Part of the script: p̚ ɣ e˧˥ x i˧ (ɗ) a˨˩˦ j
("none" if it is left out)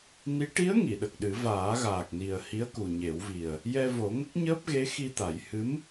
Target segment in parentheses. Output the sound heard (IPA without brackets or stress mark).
t̪